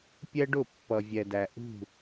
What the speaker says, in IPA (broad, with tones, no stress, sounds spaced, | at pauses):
pʲ ɛ˦ ɖ ʊ˦˨ pː ʌ˨ vʲ ɛ˨ d æ˨ ʔ ṳ˦˨